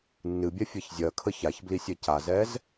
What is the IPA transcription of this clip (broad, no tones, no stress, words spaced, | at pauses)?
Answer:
nːɨbʲɛ fʲɛçzʲɜkʰə çaçbli sʲɛcazɛz